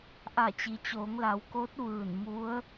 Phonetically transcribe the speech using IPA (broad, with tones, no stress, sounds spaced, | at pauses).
ʔ a˧˩ t͡ɕ i˩ t͡ɕ oː˩˧ ŋ l a˩˧ w k o˧˥ t̚ ʋ ɯː˧˩ n m u˧˥ ə̯